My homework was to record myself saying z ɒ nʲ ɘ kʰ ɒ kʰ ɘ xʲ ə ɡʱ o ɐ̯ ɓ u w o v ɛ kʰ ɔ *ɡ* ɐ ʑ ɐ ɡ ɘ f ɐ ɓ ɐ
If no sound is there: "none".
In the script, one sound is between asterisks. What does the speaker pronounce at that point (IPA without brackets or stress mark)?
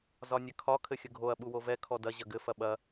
d